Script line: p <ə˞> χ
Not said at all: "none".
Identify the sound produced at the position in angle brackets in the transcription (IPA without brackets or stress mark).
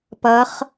ɐ